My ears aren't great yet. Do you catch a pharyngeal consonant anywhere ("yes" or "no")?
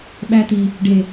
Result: no